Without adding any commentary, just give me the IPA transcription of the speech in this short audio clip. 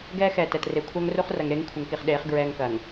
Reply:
ɡ ɛː˦ x ɛː˨ t ɛ˨ t r e˨ kʷʰ ɐː˦ ŋ r u˦ χ r ɐ˨ ŋ ɾ e˦ ŋ kʷʰ ɐ˨ ŋ k i˨ χ ɗ eː˨˦ χ ɡ ɹ ɛː˦ ŋ k ɐː˨ ŋ

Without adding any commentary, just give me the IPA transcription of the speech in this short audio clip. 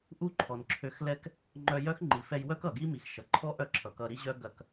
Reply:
ʔ u˥ ǃʰ ɔ˩ n ǁʰ ø˧ x l ɛ˥ k | ŋ͡ǃ œ˧ j œ˥ x ŋ͡ǃ i˩ f ɛ˧ j w œ˥ k ʌ˩ ɡ i˥ m i˩ x ʃ ʌ˩ ǃʰ ɔ˥ ʔ œ˥ ǁʰ ʌ˩ k ʌ˧ ɾ i˥ ʑ œ˥ ɡ ɐ˧ k

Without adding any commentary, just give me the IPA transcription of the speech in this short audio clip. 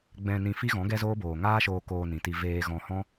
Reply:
ɡ͡b ɛ̃˧ n ĩ˧ f i˦ ɣ ɔ̃˨˦ ɡ ɛ˦ z oː˦ b oː˨ ŋ aː˦ ʃ oː˧ k oː˧ n ĩ˨ t i˧ v eː˧ ɣ ɔ̃˧ h ɔ̃˦

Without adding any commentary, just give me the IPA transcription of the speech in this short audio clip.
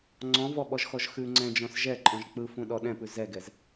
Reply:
ŋ͡ǀ ɔ̃ v ɔ ɓ ɔ ʒ x ɔ ʒ x ʉ ŋ͡ǀ ɛ̃ d͡ʒ ɔ̃ s ʒ ɛ ǃʼ ɔ̃ ʒ k͡p ɯ f ũ ɗ ɔ ɗ ɛ̃ p ʉ z ɛ ɡ ɛ z

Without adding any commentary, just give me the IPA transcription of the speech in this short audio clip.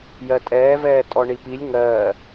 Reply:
j ɜ tʼ ɛː v ɛː tʼ ɔ ɳ i p i lʲ ŋ ɜː

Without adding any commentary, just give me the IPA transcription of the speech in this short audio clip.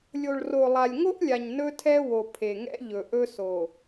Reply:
lʲ o˨ ɭ r o˨ lˠ a˨ lʲ ŋ o˦ ʔ lʲ a˨ ɲ n ɵ˦ tʰ ɛ˦ w o˨ pʰ e˨ ŋ ɛ̰˦ ʎ ɵ˨ ʔ ɵ˦ s o˨

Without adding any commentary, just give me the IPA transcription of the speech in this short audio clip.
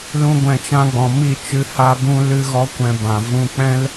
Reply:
l ũ˦ ɡʷ ɛ̃˧ t͡ʃ ã˦ ɡ͡b ɔ̃˨ m i˦˨ t͡ʃ ɨ˧ h a˧ b ũ˧ l ɨ˦ ɣ ɔ˦ kʷ ɛ̃˧ b ã˨ v ũ˧ k͡p ɛ̃˦ l

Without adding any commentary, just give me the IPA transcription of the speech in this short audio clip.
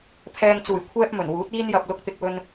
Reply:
pʰ ɛː˧ ŋ t͡s uː˨˩ j kʷʰ ɛː˥ p̚ m ɵ˨˩ n w uː˨˥ t̚ iː˥ n j ɐ˧ p̚ l ʊ˧ k̚ t̪ ɪ˧ k̚ w ɵ˧ n

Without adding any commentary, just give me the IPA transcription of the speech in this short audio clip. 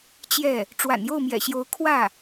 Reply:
t͡ɕ j ɛ˥˩ | ʈ͡ʂ w a̰˨˩ n j o˥˩ ʊ̯ m j ɛ̰˨˩ ɕ j o˧˥ ʊ̯ kʰ w ä˥˩

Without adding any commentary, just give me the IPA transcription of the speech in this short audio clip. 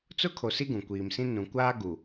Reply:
t͡s ʊ˦ kʰ o˨ s i˦ ɡ ũ˨ kʷ iː˨ m s ĩ˦ n ũ˨ kʷ aː˦ ɡ u˨

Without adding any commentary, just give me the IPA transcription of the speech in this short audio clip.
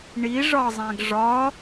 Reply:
ɳ i ʐ ɒ zˤ æ̃ ɡ ʐ ɒ

